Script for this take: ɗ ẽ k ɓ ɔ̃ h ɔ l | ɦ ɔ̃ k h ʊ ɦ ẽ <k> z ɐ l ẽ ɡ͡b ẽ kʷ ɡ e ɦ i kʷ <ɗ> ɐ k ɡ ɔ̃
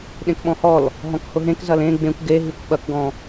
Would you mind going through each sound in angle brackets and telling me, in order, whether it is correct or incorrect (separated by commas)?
correct, incorrect